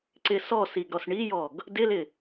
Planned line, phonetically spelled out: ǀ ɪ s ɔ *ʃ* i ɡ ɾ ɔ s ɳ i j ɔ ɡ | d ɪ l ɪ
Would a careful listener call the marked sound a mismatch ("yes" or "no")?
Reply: yes